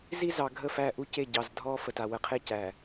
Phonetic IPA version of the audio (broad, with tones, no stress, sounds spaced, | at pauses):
z i˦ z ɑ˨ ɡʱ ə˦˨ f æ˦˨ ʔ u˦ c e˦˨ ɟ ɑ˨ z dʱ ɔ˦ f ə˨ t a˨ w ə˨ qʰ e˦˨ c æ˨